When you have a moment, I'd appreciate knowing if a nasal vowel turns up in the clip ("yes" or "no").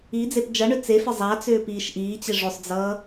no